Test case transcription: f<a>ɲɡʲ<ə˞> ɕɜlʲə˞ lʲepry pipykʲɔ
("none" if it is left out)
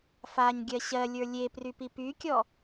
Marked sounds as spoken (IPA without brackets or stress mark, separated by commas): a, ɜ